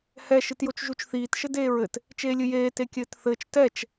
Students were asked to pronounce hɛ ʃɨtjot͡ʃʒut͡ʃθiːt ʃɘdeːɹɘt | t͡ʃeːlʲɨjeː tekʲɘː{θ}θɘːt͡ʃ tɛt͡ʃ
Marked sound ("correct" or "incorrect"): incorrect